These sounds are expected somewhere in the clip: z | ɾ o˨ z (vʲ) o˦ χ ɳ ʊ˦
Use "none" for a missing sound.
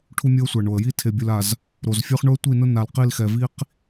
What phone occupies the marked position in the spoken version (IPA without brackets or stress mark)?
fʲ